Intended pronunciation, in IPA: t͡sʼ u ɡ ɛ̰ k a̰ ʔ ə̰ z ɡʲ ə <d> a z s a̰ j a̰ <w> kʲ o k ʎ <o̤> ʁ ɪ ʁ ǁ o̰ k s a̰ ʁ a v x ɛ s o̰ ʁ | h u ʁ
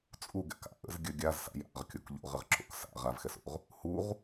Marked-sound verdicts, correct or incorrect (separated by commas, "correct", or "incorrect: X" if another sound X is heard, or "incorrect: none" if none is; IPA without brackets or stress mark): incorrect: ɡʲ, incorrect: ʁ, incorrect: o̰